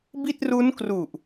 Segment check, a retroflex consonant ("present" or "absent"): absent